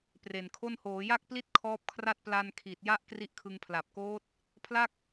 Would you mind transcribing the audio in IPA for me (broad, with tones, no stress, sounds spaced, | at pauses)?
p r e˨˩ n kʰ o˥˩ n h oː˩˦ j a˥˩ k̚ p l i˥˩ t̚ kʰ ɔː˦˥ p̚ kʰ r a˥˩ t̚ p l a˧ n kʰ i˨˩ t̚ j a˦˥ ʔ k r i˦˥ ʔ kʰ ɯ˧ ŋ pʰ l a˨˩ p̚ k oː˦˥ t̚ | pʰ l a˥˩ k̚